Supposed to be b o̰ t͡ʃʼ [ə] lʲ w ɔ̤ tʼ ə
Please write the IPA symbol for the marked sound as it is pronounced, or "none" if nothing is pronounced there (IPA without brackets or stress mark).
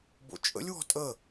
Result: ə̰